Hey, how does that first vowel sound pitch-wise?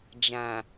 low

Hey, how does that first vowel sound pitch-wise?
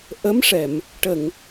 rising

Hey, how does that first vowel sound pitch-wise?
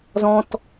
high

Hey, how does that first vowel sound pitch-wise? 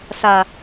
low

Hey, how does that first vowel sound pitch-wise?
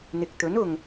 low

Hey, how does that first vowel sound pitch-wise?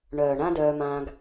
low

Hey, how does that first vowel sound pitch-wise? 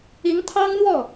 rising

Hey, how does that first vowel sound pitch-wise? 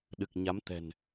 low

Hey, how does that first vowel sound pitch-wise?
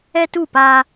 high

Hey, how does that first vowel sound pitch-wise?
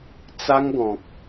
high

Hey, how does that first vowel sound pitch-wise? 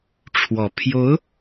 low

